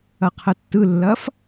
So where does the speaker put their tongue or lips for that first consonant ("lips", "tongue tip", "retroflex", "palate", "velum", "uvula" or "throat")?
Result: uvula